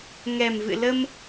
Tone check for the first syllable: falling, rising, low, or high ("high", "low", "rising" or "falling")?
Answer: low